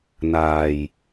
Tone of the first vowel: low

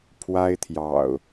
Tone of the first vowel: high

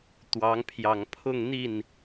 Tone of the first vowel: rising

